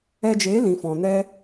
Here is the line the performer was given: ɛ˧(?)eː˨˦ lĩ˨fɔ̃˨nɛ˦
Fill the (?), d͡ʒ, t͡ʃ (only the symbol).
d͡ʒ